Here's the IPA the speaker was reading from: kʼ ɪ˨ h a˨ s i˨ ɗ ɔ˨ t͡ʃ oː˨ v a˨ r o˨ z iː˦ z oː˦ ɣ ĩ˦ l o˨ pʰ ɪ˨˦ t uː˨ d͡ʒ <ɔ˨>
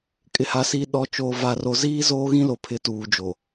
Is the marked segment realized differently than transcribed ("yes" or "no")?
yes